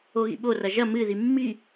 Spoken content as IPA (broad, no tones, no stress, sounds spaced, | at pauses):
o ɣ ḭ ɓ o r ɐ ʒ ɐ m ɨ ð i mː i